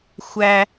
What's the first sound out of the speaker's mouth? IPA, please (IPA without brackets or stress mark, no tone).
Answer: xʷ